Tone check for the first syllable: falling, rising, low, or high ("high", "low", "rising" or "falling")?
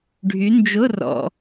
rising